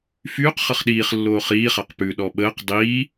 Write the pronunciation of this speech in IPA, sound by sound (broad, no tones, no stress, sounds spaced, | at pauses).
f yː q χ ʌ χ ɗ iː χ lː oː χ iː χ a q p ʉ ɗ ɔ ɓ əː q dˤ iː